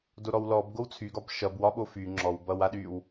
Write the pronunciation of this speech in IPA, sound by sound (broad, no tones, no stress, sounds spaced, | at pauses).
d o ɾ ɔ w l ɔ b ɡ o w t͡sʰ y ɡ ɒ b ʃ ʌ b w ɒ ɓ o f y ŋ͡ǁ ɔ w b ʌ w a ɗ y w